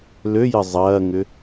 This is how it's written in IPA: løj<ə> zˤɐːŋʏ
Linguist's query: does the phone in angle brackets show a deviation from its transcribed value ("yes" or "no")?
no